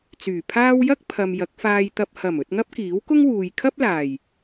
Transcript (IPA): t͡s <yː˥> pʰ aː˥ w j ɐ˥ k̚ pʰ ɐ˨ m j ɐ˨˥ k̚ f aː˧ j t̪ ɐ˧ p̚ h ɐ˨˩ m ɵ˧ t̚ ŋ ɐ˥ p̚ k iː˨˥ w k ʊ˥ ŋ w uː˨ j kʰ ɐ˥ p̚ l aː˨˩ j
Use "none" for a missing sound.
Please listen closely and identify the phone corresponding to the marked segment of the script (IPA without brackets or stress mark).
yː˨˩